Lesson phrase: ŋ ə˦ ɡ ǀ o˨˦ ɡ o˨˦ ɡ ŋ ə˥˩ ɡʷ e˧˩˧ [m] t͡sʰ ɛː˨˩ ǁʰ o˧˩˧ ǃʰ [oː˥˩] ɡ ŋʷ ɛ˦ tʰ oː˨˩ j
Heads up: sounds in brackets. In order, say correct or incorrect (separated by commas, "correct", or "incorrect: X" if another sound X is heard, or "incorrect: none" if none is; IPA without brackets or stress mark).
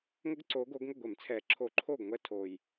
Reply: correct, correct